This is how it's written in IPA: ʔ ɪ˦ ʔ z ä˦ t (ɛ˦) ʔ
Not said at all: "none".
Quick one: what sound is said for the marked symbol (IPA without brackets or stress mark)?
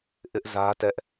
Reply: ɛ˦